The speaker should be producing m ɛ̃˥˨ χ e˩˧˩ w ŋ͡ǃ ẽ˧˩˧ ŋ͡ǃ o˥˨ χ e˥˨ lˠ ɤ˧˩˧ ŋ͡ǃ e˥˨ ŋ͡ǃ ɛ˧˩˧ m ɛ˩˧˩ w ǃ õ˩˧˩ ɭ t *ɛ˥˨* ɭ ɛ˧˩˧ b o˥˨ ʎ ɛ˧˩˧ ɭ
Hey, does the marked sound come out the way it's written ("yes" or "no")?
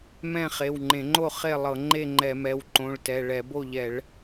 no